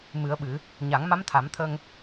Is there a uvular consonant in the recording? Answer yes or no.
no